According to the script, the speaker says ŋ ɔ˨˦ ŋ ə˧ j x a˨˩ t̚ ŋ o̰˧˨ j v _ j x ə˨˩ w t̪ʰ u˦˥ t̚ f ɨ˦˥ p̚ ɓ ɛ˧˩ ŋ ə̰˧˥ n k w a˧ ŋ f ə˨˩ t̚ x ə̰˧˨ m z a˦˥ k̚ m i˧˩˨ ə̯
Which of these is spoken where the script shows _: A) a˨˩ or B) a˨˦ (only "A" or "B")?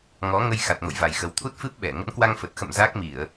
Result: A